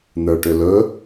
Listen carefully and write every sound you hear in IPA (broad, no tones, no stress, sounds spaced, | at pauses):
n̪ ə˞ ʈ ʏ l ɵ